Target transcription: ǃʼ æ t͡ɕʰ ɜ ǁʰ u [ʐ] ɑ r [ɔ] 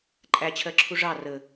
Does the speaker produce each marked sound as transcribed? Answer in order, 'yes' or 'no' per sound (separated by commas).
yes, no